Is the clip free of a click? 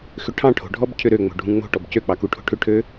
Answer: yes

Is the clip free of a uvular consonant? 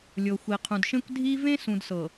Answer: no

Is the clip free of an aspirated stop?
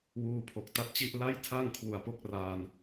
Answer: no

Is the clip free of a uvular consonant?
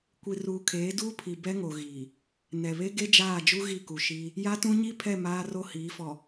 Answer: yes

